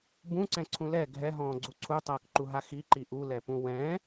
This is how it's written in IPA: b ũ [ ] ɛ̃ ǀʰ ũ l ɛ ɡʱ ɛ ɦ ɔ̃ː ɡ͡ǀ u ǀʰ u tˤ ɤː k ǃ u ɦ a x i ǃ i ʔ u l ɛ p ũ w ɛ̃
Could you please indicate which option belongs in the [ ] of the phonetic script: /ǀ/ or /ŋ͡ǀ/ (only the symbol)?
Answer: ǀ